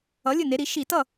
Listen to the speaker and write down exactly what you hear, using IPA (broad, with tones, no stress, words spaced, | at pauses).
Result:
ʌ˩˥ lʲɨ˥˩ne˩˥ɾi˩˥ ʃi˧˩˧tʌ˥˩